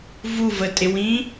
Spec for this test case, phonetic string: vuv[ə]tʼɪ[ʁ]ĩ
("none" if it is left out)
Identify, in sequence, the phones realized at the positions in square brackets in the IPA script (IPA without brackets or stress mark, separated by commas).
ə, w